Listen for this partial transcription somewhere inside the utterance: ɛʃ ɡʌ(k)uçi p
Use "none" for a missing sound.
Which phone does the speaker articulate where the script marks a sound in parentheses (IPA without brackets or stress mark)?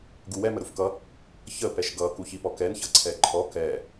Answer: k